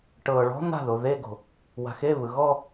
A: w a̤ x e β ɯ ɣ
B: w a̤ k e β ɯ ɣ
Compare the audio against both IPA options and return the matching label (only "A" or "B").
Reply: A